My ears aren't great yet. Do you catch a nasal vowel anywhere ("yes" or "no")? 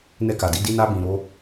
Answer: yes